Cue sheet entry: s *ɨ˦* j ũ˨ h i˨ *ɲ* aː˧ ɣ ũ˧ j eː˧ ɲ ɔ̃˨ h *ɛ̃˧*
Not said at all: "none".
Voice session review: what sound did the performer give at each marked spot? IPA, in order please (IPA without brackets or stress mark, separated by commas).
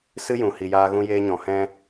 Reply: ɨ˦, j, ɛ̃˧